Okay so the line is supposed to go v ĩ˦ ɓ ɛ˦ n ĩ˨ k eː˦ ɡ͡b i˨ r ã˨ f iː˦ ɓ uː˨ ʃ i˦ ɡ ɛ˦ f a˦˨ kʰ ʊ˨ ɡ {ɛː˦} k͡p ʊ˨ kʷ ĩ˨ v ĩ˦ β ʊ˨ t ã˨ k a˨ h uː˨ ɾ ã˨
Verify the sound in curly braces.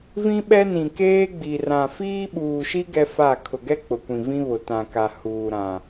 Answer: incorrect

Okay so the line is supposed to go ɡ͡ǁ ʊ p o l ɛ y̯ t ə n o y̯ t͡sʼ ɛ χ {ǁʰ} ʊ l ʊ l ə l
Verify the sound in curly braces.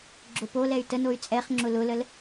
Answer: incorrect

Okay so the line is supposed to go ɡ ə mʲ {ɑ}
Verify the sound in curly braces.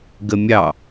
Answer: correct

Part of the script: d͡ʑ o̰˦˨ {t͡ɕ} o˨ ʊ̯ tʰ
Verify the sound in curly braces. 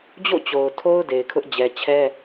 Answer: correct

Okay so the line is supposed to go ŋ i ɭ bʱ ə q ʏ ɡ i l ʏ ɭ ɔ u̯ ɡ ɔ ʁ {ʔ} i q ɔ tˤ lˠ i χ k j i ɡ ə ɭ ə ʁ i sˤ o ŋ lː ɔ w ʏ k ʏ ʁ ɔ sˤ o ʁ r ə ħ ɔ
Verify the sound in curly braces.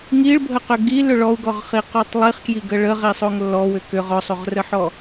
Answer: incorrect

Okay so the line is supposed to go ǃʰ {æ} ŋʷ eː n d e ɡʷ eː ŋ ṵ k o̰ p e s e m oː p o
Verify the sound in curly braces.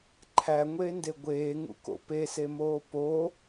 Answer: correct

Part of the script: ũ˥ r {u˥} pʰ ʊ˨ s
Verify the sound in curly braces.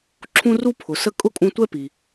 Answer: correct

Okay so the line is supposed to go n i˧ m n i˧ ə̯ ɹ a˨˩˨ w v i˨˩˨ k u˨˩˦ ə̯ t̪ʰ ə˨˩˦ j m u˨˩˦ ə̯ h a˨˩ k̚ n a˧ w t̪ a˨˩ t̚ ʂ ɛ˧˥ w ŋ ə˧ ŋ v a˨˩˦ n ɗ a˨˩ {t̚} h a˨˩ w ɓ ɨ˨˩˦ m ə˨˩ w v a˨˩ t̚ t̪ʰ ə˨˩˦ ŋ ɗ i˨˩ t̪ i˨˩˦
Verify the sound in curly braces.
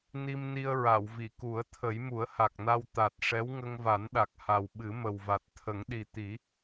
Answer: incorrect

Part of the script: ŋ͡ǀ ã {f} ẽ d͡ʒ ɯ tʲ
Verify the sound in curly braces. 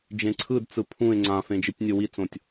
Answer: correct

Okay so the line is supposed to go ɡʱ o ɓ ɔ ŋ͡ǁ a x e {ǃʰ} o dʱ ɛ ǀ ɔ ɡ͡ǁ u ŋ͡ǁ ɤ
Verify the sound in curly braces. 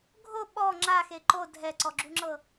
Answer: incorrect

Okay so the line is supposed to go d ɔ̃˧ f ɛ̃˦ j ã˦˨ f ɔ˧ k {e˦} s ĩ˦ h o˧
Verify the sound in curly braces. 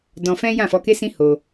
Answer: correct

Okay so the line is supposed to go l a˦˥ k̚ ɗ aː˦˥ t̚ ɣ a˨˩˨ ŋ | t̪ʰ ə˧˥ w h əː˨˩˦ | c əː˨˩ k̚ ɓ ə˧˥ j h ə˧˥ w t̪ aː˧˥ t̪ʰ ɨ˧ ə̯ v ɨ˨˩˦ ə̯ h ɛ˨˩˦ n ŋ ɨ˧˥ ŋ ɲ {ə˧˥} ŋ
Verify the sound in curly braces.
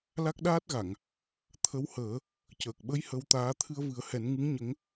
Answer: correct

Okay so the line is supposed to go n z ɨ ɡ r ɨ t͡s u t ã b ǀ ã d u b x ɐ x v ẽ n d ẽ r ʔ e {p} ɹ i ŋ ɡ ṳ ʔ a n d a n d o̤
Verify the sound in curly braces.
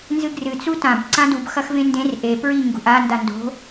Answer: correct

